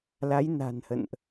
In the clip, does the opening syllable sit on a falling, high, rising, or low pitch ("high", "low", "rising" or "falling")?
rising